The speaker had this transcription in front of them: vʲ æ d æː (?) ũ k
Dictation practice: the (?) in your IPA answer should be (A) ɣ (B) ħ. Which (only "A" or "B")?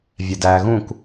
A